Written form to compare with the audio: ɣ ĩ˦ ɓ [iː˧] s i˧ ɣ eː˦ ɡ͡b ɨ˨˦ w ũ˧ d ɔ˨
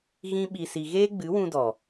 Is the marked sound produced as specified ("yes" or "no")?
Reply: no